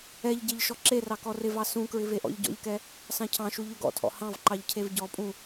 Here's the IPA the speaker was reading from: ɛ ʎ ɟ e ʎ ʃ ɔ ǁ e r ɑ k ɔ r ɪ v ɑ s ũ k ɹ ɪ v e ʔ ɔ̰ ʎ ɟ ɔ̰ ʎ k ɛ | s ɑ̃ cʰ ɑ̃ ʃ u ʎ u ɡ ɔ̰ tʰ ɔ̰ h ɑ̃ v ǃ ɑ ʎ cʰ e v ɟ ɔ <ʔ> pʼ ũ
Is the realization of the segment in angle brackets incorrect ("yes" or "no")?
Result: yes